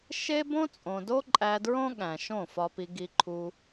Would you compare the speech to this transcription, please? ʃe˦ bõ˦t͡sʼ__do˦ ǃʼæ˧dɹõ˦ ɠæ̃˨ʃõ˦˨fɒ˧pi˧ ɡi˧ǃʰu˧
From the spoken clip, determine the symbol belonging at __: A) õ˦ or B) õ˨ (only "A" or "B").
B